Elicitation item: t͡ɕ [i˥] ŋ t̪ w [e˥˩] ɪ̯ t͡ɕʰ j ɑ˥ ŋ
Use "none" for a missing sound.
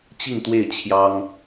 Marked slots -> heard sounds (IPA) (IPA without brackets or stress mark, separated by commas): i˥˧, e˥˩